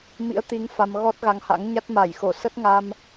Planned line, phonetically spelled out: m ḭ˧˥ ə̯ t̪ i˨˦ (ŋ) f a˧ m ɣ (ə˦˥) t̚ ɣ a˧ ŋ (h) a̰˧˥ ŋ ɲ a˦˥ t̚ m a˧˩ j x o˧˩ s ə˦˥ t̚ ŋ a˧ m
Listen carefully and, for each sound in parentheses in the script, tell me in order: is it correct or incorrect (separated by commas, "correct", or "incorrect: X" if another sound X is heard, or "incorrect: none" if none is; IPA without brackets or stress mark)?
correct, incorrect: ɔ˦˥, correct